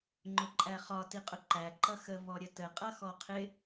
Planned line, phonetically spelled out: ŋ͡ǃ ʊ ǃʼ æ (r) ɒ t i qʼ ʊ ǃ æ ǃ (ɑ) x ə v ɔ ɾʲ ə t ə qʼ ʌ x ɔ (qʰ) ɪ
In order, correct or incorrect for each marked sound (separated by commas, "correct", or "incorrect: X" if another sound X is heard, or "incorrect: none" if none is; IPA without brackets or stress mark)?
incorrect: χ, incorrect: ʌ, correct